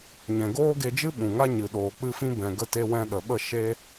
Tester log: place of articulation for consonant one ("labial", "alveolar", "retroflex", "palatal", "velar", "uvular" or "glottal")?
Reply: palatal